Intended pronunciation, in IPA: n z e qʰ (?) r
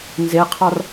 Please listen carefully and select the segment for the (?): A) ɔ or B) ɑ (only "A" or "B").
B